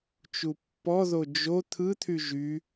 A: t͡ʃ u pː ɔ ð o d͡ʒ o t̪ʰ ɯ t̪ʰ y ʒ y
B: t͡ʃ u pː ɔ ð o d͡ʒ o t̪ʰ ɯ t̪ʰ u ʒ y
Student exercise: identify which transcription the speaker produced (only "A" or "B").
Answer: A